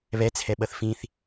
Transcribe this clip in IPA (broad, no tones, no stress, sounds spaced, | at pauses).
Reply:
β ɛ t͡sʰ ɛ ɓ ʌ θ f ĩ θ